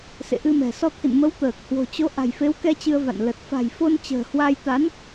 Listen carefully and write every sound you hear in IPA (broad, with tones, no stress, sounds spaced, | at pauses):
s ḛ˧˨ ʔ ɨ˧ m ɛ̤˨˩ s ɔ˧ t̪ʰ ḭ˧˨ n m ə˨˦ w t̪ əː˨˩ k̚ h w o̤˨˩ t͡ɕ o˨˦ ʔ a̤˨˩ j f e˨˦ w k ɛ˧ t͡ɕ ɨ˧ ə̯ v a̰˧˨ n l ə˨˩ t̚ f a̤˨˩ j f o˧ n t͡ɕ ə̤ː˨˩ h w a˧ j t̪ a˨˦ n